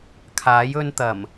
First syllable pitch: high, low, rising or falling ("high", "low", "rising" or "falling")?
rising